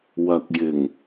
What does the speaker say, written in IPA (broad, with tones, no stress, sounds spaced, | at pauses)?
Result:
w ɐ˨ k̚ j ɪ˨˩ ŋ